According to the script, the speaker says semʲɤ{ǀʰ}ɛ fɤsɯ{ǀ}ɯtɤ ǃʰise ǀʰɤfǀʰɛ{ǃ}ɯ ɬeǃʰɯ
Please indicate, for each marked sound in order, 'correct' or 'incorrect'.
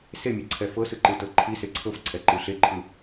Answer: correct, incorrect, correct

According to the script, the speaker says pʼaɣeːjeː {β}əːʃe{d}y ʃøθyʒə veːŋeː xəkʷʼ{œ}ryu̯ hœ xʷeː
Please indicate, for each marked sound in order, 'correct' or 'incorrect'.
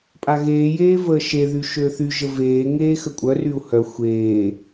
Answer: incorrect, incorrect, correct

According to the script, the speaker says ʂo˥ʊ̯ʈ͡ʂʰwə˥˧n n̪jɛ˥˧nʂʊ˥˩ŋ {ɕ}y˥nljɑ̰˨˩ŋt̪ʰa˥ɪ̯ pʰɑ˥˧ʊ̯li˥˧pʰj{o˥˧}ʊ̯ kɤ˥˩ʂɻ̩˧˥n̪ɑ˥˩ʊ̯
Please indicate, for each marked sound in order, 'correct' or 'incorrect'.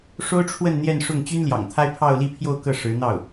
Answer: incorrect, correct

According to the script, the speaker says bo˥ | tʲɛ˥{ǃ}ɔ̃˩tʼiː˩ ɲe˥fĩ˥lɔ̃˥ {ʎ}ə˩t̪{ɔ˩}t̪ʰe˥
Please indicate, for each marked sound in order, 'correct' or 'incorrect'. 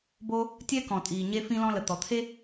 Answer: incorrect, incorrect, correct

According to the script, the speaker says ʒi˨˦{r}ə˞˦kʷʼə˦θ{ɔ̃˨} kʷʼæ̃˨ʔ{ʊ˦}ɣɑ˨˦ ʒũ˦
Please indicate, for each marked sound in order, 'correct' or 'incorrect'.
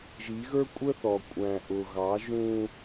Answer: incorrect, incorrect, incorrect

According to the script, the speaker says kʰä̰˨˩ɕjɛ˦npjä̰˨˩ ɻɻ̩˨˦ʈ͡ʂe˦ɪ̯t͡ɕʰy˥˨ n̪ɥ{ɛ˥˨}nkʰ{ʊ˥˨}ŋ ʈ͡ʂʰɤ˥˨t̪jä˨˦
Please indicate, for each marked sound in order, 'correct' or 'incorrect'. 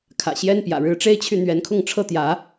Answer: incorrect, correct

